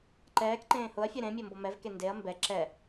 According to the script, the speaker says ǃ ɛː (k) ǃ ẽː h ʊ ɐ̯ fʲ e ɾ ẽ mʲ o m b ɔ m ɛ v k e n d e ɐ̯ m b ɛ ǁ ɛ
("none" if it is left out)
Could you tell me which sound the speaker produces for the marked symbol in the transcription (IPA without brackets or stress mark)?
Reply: k